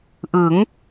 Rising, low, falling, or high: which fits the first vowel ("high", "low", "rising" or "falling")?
rising